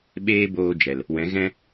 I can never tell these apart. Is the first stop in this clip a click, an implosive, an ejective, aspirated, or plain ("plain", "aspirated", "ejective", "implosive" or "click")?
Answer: implosive